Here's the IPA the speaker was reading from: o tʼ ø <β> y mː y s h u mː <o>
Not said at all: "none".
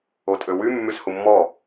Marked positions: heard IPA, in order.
w, ɔ

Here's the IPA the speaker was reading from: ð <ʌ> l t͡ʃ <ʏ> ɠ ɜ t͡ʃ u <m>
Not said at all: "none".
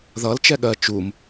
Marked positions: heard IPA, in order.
ʌ, ɛ, m

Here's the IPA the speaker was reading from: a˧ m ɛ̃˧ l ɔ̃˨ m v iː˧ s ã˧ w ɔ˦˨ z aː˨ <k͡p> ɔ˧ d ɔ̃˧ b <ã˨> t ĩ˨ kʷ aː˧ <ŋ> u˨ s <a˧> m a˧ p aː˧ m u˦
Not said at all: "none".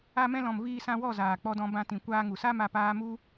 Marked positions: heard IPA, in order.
k͡p, ã˧, ŋ, a˦

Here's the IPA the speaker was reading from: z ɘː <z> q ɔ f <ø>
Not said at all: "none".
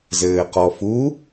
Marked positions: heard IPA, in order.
none, u

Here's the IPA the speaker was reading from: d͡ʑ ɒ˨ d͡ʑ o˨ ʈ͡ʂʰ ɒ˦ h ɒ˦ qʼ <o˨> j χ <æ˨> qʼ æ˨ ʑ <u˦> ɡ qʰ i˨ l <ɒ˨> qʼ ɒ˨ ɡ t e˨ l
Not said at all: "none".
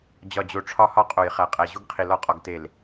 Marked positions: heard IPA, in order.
o˨, æ˨, u˦, ɒ˦

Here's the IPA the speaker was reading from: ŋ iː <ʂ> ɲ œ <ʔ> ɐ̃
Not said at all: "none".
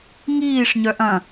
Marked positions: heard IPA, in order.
ʂ, ʔ

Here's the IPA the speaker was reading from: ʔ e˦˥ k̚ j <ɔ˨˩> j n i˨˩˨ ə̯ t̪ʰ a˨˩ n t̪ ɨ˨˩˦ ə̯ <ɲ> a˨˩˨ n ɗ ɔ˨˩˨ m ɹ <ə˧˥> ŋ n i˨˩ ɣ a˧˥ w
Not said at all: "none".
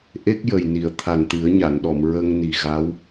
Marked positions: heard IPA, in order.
ə˨˩, ɲ, ə˧

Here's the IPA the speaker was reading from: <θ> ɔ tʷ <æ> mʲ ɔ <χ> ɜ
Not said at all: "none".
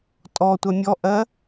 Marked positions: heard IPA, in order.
tʼ, æ, ʔ

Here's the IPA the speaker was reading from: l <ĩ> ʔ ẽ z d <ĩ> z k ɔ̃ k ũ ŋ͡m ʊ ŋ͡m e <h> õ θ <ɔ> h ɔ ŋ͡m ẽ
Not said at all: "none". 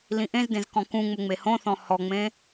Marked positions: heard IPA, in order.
ĩ, ẽ, h, ɔ̃

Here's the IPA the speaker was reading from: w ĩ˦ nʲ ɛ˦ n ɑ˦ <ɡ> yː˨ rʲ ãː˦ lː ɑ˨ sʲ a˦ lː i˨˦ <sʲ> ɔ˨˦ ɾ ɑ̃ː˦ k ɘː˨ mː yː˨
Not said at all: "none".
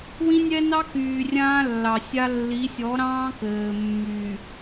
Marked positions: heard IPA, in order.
k, sʲ

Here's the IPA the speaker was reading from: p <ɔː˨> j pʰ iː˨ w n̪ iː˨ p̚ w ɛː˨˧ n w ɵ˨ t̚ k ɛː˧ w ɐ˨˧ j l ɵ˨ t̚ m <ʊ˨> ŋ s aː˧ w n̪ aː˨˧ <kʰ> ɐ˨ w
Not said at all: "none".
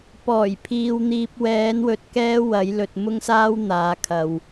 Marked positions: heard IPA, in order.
ɔː˨˩, ʊ˧, kʰ

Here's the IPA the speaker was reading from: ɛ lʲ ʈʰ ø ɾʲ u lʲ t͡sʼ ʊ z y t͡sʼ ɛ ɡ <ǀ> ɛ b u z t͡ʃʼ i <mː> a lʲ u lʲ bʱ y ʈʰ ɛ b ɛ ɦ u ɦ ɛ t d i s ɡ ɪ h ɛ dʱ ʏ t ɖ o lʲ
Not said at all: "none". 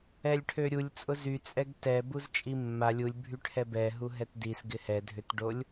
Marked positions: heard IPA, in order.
t, mː

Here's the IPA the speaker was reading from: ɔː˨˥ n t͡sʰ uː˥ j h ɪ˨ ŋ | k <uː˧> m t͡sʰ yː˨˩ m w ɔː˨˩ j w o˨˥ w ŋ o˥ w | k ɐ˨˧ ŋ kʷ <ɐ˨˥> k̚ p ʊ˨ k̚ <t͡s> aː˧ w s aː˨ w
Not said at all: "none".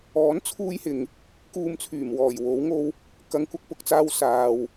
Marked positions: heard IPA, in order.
uː˧, ɐ˧, t͡s

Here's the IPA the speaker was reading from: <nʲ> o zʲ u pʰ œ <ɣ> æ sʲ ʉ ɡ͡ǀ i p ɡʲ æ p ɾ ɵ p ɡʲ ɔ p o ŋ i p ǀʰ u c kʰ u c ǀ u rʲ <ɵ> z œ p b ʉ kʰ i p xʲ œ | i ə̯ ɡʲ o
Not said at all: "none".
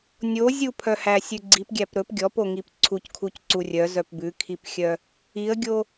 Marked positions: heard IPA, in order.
nʲ, h, œ

